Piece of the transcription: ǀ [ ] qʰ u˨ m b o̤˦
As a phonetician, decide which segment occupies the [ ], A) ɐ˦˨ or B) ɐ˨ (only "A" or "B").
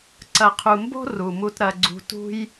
B